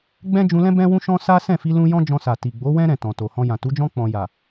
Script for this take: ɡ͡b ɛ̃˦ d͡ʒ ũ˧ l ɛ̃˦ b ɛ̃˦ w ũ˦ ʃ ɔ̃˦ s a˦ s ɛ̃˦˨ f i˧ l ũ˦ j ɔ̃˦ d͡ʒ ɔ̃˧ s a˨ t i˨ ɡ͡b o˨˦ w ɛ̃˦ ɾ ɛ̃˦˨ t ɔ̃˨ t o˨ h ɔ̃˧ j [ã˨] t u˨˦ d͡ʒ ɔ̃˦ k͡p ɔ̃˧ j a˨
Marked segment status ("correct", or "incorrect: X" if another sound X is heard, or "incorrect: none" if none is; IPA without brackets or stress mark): correct